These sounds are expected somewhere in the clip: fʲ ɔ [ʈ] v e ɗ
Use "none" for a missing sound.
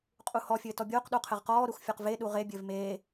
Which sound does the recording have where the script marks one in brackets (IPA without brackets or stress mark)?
q